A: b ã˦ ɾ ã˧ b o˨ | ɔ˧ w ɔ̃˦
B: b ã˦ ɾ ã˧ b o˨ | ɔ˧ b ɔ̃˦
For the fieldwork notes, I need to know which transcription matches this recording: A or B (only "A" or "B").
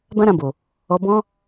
B